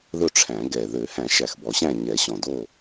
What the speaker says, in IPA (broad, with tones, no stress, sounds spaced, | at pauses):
ð ɵ˥˨ ʈ͡ʂʰ æ̃˨˩˦ ɡ ɛ˨˩ ð ø˨˩˦ h æ̃˨˩˦ ʃ æ˨˩ x b ɔ˨˩˦ ɕ æ̃˥˨ ɲ ɛ˨˩˦ ɕ ɔ̃˨˩ d o˥˨